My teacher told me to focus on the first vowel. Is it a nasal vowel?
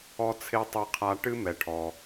no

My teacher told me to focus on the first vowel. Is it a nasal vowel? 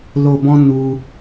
no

